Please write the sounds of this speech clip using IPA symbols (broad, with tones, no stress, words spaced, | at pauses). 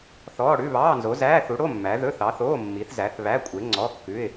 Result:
θɔː˧˥˧ɽʉ˧˥˧ βɑː˧˥˧nzo˨˥ zæː˧˥˧θu˨˥ɽo˧˥˧ mːæ˨˥ ðɵ˧˥˧θɑ˨˥θoː˧˥˧ mːi˨˥θzæ˨˥θ βæ˧˥˧kʷʼe˨˥ŋ͡ǀɔ˧˥˧kːʉ˧˥˧ɪ̯